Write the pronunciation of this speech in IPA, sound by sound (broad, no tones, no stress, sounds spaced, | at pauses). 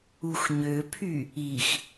u x ɲ ø pʰ y | i x